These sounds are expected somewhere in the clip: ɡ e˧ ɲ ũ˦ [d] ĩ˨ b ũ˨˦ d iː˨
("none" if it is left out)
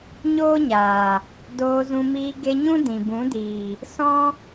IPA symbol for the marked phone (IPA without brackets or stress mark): d